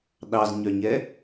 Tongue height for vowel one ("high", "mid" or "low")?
low